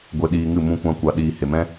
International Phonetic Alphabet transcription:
ɡʷe˧ɗiː˧ŋɨ˦˨ mũ˦kʷã˦ kʷa˧ɗiː˧ he˨mɛ̃˦

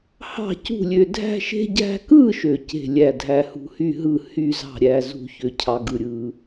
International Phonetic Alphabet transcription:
hɑ̤˥˨cṳ˥˨lʲø˧ dʱæ̤˧ʃe̤˧ɟæ̤˧kɯ˥˨ ʃø˧ce̤˥˨lʲæ˥˨ dʱæ˧hṳ˧hy˥˨ɦɯ˥˨ hy˥˨zɑ̤˥˨ ɾʲæ˧zṳ˧ çø˧cʰɑ˧ɡɯ˧ɾʲɯ˧

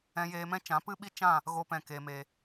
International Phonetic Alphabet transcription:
ɛ̃˧jeː˧mɛ̃˦t͡ʃã˨˦ pɨ˦ɓi˦t͡ʃã˦˨ | ɣo˧pɛ̃˨ ke˨me˨

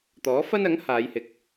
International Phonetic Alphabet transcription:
t̪ɔː˨˥ fɐ˥nɐ˨˥ŋ haː˨˧jhɪ˨k̚

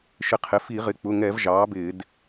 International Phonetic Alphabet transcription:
ʃɪ˧˩˧qʰɪ˩˧˩ fi˧˩˧ʁɪ˩˧˩ k͡pʊ˩˧˩ŋɛ˧˩˧v ʒɑː˩˥bɪː˧˩˧d

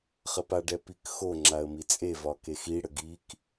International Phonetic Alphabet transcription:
χəpaɖɛ pikxoŋ͡ǁaə̯ mit͡sʼevɒ kexiɽə ɡik

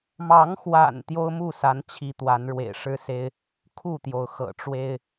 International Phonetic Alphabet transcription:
mɑ˨˦ŋxwa̰˨˩n t̪jo˦ʊ̯mu˥˨sa˨˦nt͡ɕʰi˨˦ t̪wa˨˦nɻwḛ˨˩ɪ̯ ʂɻ̩˦se˦ɪ̯ | kʰu˥˨t̪jo˩ʊ̯xɤ̰˨˩ʈ͡ʂwe˦ɪ̯

